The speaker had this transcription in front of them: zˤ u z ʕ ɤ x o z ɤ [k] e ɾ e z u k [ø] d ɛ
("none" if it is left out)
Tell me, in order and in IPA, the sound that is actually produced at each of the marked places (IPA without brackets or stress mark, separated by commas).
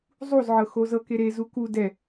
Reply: k, u